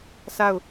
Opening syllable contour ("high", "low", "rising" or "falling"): falling